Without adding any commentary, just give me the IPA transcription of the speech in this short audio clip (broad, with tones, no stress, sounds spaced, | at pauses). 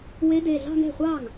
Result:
w e˧˥ d e˩˧˩ ɮ ɑ̤˥˧ ŋ ɛ̤˥˩ χʷ ɑ˥˩ ŋ